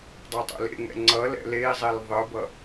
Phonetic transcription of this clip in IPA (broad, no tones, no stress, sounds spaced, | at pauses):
dˤ a tˤ o̰ l ḛ ŋ ɛ̰ ŋ͡ǀ ʌ l ɛ̰ l e i̯ zˤ e l ðˤ ɯ b ʌ